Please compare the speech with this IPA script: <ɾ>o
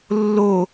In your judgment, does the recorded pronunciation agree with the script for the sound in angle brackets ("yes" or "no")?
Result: no